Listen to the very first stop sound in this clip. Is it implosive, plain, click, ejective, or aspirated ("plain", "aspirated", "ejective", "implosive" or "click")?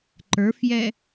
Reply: click